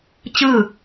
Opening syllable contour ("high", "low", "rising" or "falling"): falling